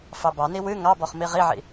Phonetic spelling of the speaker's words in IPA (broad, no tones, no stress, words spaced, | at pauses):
fɑbɑni wɨ ŋɑ bɔχmiʁiʕḭ